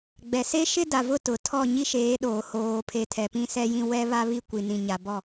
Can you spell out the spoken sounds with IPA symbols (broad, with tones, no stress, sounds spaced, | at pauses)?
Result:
ɡ͡b ɛ˨ s e˦ ʃ ɪ˦ d a˨ v ʊ˦˨ t ʊ˨ tʰ ɔ˦˨ ɲ i˦ ʃ eː˨˦ ɗ oː˨ h oː˨ pʰ e˨ tʰ ɛ˨ p ĩ˦ s ɛ˦ j ĩ˦ w ɛ˦ β a˦ β i˦ kʷ i˨ n ĩ˨ ɲ a˨ b ɔ˦˨